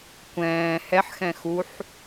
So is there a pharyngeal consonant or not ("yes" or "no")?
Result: yes